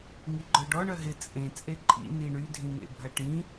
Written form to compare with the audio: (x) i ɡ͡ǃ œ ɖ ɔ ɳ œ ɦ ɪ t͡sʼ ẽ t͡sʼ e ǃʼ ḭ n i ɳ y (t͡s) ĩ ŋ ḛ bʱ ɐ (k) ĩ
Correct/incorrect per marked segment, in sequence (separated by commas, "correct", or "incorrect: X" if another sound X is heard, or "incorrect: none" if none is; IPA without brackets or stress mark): incorrect: ŋ, incorrect: dʱ, incorrect: ʈ